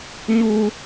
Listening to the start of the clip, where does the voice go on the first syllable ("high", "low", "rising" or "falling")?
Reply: high